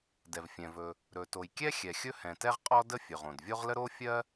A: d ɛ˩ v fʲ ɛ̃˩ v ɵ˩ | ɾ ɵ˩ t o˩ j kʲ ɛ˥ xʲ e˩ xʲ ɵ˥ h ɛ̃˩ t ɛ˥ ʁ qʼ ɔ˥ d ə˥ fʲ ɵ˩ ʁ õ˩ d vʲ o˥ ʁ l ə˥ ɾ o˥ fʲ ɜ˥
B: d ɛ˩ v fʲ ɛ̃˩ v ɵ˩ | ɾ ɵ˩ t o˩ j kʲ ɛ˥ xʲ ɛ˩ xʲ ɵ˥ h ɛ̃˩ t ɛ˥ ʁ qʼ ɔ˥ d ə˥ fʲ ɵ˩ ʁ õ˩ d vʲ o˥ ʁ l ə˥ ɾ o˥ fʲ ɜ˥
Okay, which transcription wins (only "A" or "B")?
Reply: B